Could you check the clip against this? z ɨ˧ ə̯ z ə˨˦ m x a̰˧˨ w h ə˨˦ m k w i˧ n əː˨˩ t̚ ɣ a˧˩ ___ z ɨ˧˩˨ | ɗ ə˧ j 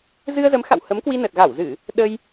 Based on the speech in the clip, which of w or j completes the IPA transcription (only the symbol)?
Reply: w